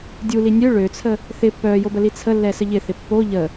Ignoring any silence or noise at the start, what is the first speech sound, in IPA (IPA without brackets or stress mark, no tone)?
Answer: dʲ